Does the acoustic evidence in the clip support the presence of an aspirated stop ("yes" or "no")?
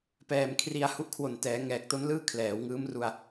yes